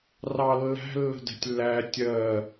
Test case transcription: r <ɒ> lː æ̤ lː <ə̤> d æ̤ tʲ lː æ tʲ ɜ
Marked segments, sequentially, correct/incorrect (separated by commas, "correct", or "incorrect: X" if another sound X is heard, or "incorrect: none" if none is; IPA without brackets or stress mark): incorrect: ɑ, correct